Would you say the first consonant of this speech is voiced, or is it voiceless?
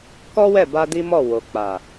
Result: voiceless